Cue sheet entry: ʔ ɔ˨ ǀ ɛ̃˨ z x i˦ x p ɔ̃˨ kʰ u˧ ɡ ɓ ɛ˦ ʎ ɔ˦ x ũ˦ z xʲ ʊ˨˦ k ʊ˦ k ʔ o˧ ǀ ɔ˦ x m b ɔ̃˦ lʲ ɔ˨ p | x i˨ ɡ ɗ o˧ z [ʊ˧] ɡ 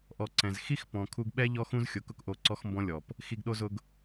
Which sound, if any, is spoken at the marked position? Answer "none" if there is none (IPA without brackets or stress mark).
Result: ʊ˧